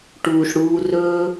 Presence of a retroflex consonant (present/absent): present